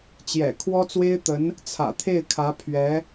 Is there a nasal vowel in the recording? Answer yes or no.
no